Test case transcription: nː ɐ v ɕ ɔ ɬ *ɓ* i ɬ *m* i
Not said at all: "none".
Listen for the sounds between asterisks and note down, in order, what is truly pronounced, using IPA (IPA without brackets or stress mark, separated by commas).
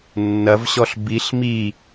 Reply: b, m